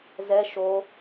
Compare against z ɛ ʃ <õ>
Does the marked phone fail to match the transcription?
yes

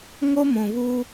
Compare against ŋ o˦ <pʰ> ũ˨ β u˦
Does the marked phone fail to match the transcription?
yes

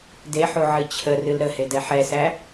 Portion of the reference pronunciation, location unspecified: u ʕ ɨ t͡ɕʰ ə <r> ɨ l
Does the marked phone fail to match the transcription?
no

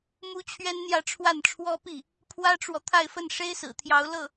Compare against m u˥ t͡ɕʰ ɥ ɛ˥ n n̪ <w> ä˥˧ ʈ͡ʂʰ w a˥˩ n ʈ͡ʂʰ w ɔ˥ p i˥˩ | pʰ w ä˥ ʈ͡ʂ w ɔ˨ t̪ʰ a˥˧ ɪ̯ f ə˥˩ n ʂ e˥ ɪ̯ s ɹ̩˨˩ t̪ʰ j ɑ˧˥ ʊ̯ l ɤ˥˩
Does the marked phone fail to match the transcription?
yes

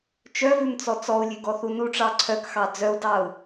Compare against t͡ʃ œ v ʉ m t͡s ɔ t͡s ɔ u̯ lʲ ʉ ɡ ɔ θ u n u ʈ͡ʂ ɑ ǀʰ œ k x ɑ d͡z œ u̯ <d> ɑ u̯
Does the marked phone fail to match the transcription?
no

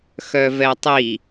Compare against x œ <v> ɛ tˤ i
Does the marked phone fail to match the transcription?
no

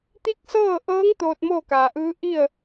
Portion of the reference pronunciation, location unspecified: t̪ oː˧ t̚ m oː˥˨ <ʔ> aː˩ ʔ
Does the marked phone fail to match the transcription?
yes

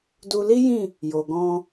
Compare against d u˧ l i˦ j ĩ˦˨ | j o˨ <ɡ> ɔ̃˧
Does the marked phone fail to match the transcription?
no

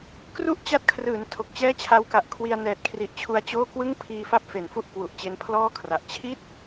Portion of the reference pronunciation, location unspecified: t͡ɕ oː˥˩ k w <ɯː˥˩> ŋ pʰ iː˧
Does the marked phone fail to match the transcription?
yes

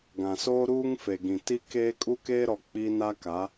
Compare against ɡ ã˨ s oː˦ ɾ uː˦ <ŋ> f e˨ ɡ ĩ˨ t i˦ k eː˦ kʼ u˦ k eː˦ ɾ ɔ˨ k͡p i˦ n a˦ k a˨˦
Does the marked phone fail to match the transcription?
no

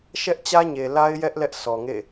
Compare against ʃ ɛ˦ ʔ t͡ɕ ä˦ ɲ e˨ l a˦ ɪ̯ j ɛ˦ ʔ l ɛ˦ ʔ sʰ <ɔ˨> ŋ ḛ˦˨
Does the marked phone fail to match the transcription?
no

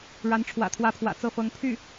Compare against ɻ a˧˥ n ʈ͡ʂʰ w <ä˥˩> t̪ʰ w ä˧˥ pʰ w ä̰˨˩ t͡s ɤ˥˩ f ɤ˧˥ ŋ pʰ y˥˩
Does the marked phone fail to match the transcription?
yes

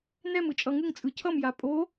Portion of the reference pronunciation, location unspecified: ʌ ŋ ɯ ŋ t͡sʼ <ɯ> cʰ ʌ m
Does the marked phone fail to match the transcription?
no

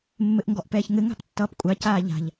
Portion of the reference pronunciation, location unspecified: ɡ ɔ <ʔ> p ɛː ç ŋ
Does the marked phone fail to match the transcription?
no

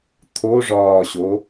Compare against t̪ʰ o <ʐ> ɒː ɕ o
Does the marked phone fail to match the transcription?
no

